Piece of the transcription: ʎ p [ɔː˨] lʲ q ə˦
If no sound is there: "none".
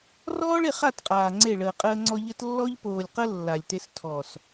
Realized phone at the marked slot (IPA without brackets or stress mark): oː˨